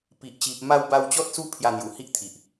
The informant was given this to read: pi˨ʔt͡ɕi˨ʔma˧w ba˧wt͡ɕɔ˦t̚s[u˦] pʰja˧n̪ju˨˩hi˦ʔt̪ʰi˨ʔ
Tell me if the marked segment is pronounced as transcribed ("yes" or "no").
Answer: yes